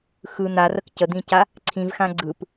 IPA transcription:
xɯ n̪arək cəd̪ĩca | ǀʰĩvxã ɡ͡ǀɯp

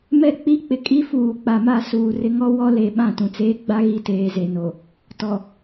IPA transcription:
mɛ˦k͡pi˦ k͡pɪ˨kʼi˦ fuː˨k͡pa˨ma˦˨suː˨ rɪ˦ ŋɔ˦wɔ˦ le˨ɓã˦˨tũ˨ t͡seː˦ɡ͡ba˦ɣi˦˨teː˨ ze˨no˨ | tɔ˨

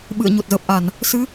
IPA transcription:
ɓɨ̰˧˨ə̯ ɲo˨˩t̚zəː˨˩p̚ʔa˧˩˨n | sɨ˨˦

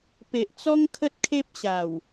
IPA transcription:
pe˨ʔt͡sɔ˦ŋ kʰə˦t̚kʰe˦p̚ɕa˨˩w

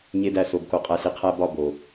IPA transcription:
ɲe˧dæ˧so˨b ko˨qʼæ˨ɬi˨qʰæ˧ bɒ˦bo˨

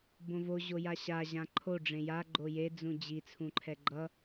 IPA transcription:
bõvo ʑojaɕa ʑãǃʰo ɖ͡ʐẽja ɡ͡ǃoje d͡zũd͡ʑi t͡sʰũǃʰɛɡ͡ǃʌ

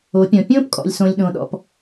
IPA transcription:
o˨˦pʲɔ̃˨ pʲõː˦pkʼɔ̰˨lʲsõ˨lʲɗõ˨ ɗɔ̰˨p

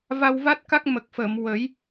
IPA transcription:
va˧wva˦˥t̚ka˦˥k̚ mə˨˩k̚fəː˨˩˨m wə˨˩˦j

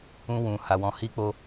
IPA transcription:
ũ˦wũ˧ ha˧wɔ̃˧ hi˧k͡po˧

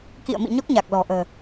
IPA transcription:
kḭ˧˨ə̯mḭ˧˨ ɲɔ˦˥k̚ɲa˨˩k̚lɔ̤˨˩ ʔə̤ː˨˩

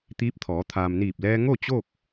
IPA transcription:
t̪iː˧˥p̚t̪ʰɔː˩˧ t̪ʰaː˩mniː˧˩p̚lɛː˧ ŋo˥˨ t͡ɕo˥˨k̚

